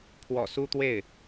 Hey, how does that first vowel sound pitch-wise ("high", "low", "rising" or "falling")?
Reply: low